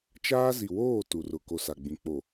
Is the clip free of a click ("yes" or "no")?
yes